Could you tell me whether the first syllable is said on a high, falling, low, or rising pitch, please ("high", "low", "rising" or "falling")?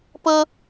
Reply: high